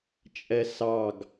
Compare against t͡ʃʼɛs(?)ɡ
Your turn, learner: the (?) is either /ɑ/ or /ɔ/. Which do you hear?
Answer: ɑ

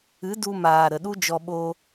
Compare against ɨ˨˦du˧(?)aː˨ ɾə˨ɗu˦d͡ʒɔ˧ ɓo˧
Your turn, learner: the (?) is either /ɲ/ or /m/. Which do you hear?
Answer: m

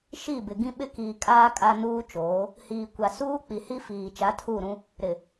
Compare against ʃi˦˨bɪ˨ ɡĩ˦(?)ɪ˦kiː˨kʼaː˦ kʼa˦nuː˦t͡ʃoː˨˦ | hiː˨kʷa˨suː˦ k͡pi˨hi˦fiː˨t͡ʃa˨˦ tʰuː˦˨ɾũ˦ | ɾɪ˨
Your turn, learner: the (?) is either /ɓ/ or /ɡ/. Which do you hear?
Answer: ɓ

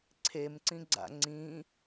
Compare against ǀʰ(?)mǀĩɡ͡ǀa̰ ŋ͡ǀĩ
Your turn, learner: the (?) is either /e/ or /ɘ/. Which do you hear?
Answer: e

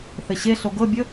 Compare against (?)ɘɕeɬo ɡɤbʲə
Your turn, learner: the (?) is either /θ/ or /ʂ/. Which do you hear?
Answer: θ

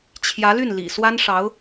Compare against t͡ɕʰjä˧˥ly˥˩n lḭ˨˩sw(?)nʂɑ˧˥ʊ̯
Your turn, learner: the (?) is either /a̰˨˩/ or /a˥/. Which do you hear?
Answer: a˥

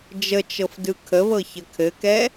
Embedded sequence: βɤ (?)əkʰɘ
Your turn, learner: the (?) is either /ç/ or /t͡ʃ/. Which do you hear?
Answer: ç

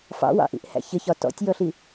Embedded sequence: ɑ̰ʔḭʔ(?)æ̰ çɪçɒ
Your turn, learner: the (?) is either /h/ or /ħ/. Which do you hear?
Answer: h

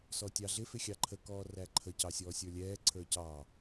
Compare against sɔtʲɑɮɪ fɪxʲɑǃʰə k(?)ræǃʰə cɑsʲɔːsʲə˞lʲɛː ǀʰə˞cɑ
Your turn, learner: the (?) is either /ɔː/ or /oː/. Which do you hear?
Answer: ɔː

